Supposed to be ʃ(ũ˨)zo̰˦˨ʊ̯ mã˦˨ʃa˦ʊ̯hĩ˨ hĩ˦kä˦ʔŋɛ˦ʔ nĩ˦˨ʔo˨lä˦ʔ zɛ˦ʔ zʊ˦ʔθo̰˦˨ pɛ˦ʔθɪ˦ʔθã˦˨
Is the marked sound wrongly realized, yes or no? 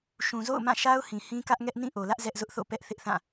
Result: no